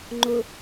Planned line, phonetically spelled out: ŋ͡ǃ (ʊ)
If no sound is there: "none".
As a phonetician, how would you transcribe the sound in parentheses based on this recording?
ʊ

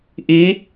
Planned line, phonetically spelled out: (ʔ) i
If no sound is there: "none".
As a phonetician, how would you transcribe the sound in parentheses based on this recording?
ʔ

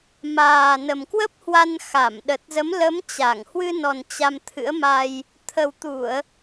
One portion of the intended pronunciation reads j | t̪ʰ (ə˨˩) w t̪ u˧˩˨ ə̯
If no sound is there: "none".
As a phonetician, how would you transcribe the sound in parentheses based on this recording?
ə˨˩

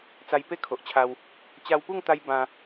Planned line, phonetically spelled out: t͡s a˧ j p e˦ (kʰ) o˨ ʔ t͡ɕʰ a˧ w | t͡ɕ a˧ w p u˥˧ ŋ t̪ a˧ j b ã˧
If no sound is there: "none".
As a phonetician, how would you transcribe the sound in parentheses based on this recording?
kʰ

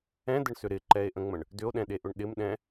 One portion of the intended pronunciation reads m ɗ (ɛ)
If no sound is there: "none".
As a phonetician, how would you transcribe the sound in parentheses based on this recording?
ɛ̃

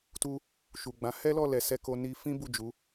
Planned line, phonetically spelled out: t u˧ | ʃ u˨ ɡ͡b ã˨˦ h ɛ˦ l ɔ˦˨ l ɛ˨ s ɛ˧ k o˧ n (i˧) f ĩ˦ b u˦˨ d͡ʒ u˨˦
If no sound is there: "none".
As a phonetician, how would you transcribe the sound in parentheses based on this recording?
i˧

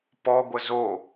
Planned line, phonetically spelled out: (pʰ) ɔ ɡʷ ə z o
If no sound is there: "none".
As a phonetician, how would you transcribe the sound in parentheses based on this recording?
p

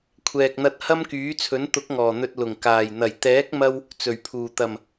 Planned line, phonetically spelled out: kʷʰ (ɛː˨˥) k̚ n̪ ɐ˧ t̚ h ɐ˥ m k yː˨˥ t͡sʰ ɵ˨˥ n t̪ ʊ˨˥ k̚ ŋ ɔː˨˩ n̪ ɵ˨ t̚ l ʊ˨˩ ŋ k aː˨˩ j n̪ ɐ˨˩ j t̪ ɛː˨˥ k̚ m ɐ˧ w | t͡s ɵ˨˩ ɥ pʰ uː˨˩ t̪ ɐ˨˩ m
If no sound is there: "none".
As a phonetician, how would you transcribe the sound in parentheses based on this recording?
ɛː˨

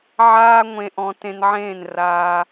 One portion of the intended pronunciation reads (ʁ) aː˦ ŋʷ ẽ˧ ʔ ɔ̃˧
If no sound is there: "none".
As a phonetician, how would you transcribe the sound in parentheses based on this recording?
ʕ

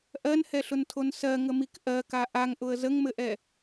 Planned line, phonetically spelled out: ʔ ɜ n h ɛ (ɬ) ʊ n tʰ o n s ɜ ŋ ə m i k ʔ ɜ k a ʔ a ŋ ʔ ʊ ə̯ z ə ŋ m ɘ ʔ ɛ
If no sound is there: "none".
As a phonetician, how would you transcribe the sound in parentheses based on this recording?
ɬ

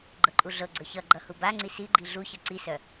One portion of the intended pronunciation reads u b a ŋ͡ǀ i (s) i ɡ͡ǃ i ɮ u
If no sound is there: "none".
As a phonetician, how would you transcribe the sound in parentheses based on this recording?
s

